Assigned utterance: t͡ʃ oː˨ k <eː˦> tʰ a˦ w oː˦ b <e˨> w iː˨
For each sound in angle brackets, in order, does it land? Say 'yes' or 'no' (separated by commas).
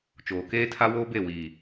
yes, no